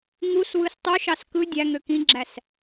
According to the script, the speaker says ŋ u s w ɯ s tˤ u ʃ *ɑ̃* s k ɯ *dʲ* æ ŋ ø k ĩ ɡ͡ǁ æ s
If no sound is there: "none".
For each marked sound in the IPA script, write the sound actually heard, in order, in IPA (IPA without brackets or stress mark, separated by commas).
ɑ, dʲ